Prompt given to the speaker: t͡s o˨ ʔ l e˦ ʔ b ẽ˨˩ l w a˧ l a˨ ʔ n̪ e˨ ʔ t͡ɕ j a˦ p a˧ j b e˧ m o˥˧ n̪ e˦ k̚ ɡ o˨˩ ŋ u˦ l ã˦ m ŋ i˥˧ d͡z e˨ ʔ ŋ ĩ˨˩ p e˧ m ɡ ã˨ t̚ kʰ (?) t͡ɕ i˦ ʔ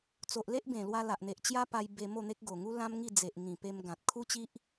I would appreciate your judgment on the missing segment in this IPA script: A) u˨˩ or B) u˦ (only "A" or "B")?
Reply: B